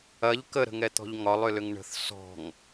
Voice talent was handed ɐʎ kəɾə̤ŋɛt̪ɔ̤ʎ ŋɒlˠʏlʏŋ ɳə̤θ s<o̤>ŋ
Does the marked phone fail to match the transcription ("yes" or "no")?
yes